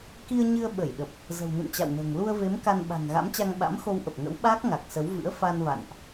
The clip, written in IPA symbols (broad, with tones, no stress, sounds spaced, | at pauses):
k i˧ ə̯ ɲ ɨ˧ ə̯ ɓ ə˧˩ j ɗ ə˨˩ p̚ | z ə̤˨˩ w n ṵ˧˨ n t͡ɕ a̰˧˨ w n ə̤ː˨˩ ŋ l u˧ ə̯ v e˨˦ m k a˧ n ɓ a̤˨˩ ŋ ɣ a̰˧˥ m t͡ɕ a˧ ŋ ɓ a̰˧˥ m x o˧ w ʔ ə˨˩ p̚ ŋ ə̰˧˥ w ɓ aː˦˥ k̚ ŋ a˨˩ k̚ s ə˨˦ w v ɨ̰˧˥ ə̯ f a˧ n v a̰˧˨ n ʔ